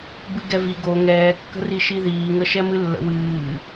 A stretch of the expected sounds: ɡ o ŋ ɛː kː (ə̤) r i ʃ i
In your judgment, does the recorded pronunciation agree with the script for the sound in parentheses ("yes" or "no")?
yes